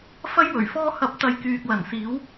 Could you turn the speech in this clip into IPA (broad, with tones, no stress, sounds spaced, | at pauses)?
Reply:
f ɐ˥ j w ɵ˨˩ ɥ f ɔː˧ h ɐ˨˥ p̚ t̪ ɐ˨ j k yː˨ k̚ l ɐ˨˩ n s iː˨˥ w